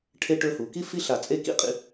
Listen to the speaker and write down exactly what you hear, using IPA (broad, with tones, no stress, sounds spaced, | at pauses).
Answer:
ʈʰ e˥ ʈ ɵ˧ h u˩˧ k i˥ f i˥ ɬ a˧˩ t͡sʼ e˥˧ k ḭ˥ qʼ ḭ˧